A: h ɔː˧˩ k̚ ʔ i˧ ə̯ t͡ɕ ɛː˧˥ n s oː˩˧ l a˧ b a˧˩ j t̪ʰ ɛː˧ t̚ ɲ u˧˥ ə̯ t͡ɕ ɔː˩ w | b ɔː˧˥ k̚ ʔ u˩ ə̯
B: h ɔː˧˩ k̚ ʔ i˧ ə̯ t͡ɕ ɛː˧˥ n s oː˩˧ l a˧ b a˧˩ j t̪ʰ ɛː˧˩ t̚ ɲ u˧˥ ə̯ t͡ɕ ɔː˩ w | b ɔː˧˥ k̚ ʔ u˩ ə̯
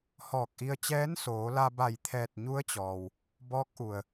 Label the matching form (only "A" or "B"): B